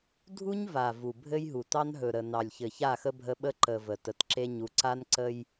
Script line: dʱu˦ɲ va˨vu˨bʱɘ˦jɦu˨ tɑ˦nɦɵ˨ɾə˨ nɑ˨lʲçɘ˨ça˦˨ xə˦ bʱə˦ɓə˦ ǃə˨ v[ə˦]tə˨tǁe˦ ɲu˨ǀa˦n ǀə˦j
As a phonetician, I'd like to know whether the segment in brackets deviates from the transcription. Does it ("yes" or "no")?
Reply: yes